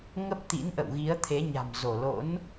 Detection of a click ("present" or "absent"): absent